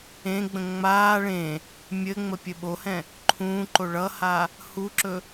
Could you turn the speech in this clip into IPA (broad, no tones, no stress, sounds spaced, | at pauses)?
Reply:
ẽ ɡ͡b ə̃ ŋ͡m aː ɭ ẽ | mʲ ɘ ŋ͡m ə pʲ ɘ ɓ o h ɛ̃ | ǃʰ ũː ǃ o ɭ ʌ h a | h u ǁ ɵ